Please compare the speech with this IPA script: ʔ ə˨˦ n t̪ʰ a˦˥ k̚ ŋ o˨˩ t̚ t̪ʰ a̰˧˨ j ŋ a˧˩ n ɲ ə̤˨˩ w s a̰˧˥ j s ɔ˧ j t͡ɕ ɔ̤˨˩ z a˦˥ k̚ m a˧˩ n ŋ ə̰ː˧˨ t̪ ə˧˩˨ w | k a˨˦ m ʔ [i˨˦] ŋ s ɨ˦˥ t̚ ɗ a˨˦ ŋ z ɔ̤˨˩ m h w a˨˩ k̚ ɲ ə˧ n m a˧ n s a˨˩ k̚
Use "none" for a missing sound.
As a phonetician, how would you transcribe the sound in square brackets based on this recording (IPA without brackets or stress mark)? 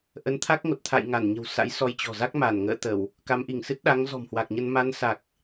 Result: i˧˩